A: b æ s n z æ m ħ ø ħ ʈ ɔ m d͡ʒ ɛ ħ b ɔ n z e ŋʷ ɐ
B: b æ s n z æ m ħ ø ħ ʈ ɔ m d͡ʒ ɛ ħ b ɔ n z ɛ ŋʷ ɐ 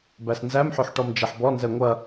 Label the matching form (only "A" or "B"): B